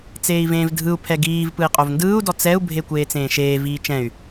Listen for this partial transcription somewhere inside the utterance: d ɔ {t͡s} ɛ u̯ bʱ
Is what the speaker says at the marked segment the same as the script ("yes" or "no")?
yes